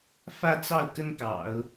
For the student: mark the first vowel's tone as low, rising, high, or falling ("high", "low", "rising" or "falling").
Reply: falling